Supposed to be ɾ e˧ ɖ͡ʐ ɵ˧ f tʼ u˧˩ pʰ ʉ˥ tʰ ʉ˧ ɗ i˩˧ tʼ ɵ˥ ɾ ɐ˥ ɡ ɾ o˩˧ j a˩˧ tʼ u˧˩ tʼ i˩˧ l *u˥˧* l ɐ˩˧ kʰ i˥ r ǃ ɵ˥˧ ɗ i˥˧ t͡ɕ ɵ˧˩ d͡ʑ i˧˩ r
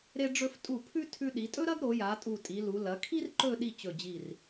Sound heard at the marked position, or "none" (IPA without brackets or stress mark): u˩˧